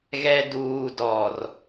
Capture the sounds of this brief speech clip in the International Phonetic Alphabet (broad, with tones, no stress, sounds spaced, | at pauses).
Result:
ɣ ɛ˨ d uː˨ d ɔ˨ r